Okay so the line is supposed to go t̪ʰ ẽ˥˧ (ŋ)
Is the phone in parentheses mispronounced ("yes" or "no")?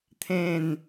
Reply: yes